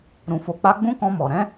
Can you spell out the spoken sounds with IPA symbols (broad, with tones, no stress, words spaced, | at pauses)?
ɾũ˧fo˧k͡pa˦ ɡ͡bũ˦kɔ̃˧mɔ˨ ɾɛ̃˨˦